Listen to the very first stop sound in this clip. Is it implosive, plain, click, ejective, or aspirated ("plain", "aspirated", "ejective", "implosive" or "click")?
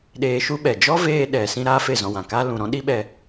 implosive